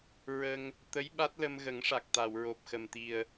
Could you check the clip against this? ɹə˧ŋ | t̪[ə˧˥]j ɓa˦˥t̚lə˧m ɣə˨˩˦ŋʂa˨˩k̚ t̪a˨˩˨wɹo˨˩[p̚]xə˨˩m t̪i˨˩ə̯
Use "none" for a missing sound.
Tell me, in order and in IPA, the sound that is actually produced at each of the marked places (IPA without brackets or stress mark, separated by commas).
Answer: ə˧˥, p̚